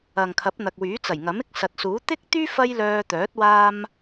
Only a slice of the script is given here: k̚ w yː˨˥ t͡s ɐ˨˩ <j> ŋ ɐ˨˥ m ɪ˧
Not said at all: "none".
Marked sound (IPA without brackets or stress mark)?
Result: j